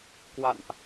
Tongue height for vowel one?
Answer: low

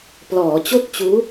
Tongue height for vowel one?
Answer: mid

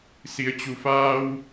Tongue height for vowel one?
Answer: high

